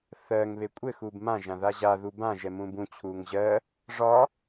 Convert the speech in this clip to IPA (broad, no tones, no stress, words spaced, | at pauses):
θɜŋ βekʷʼɘ xuːbmã ʒãðaʑa ðubã ʒɛmũːbũ t͡ɕʰuːŋʑɜ | ʐɒ